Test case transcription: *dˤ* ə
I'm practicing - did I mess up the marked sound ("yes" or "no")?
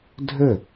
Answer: yes